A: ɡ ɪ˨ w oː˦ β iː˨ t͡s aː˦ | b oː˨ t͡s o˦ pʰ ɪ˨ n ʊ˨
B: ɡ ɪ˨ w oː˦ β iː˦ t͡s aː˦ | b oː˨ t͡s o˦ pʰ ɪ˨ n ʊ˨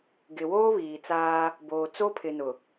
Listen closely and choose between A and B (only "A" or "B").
A